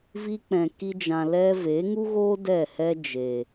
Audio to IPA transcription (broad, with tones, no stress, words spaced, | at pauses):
vi˧k͡pɛ̃˨ ki˧d͡ʒã˨ lɛ˧ve˨˦ŋu˦ɣoː˦ dɛ˦˨hɛ˦ d͡ʒe˨